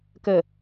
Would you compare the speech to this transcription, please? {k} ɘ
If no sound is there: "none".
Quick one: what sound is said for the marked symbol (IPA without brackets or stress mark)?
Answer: k